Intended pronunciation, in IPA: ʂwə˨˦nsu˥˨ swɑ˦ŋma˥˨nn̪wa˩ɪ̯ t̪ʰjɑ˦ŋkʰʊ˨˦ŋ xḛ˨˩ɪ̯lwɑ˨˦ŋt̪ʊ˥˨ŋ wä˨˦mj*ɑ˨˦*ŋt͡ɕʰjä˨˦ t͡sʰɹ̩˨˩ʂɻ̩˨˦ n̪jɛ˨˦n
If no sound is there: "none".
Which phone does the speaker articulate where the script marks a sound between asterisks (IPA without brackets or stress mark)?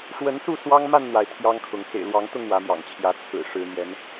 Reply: ɑ̰˨˩